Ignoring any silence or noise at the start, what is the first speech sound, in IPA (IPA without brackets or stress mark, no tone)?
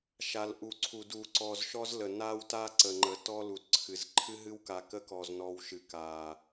ʃ